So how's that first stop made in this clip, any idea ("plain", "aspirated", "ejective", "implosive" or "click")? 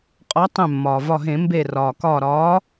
ejective